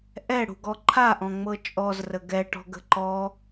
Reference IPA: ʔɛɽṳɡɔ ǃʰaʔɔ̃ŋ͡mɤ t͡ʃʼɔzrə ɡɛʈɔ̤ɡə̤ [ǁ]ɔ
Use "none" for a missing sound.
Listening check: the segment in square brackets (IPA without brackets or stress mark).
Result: ǃ